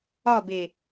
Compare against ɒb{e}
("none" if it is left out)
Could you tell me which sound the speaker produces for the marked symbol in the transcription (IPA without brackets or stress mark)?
e